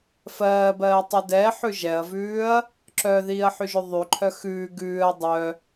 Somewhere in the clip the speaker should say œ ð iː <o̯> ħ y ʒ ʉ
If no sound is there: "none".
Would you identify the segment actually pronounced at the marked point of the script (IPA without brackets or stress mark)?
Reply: ɐ̯